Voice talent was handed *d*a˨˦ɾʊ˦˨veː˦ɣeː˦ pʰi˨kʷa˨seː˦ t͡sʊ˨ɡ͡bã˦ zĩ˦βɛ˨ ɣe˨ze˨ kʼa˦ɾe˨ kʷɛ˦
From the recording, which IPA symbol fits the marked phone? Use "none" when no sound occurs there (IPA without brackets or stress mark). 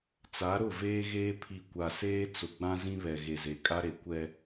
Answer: t͡s